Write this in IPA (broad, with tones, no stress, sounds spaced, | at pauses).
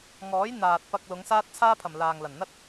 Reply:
ŋ ɔː˨˥ j n̪ aː˨ t̚ p ɐ˧ k̚ l ʊ˨˧ ŋ s aː˥ t̚ t͡sʰ aː˥ pʰ ɐ˨ m l aː˨ ŋ l ɐ˨˩ n n̪ ɐ˥ t̚